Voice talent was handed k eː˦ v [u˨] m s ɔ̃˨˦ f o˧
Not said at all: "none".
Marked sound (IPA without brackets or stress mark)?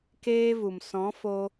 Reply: u˨